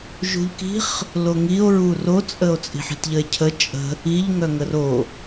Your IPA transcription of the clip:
ʒ ṳ ʎ k i̤ χ | l o ŋ i o̯ ɹ u r o t͡sʼ ə o̯ t͡sʼ i̤ ħ i̤ t ʎ ə e̯ cʰ ə t͡ʃʼ ə̤ | i ʎ ŋ œ ŋ ə r o

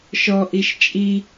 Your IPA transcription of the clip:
ʃ ɔ ʔ i ʃ t͡ʃʼ i

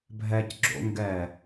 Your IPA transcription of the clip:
bʱ ɛ c ɡ͡ǁ o̰ ŋ ɡ ɛ

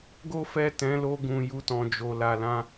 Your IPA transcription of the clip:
ɡ o˦ f ɛ˦˨ t ɛ̃˨˦ l o˧ ɡ ũ˨ j u˧ t ɔ̃˨ d͡ʒ o˨ l a˨ l ã˧

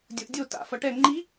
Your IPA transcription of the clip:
dʲ o ʔ dʲ o t a̰ f ʌ ʈ ɛ ŋ͡ǃ i

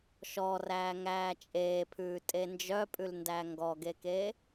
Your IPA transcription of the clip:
ʃ ɔ r æː ŋ æː t͡ʃʼ eː pʰ ʉː tʼ e n d͡ʒ œ pʼ ʉ l n d æ ŋ ɡ ɔ ɡ e k eː

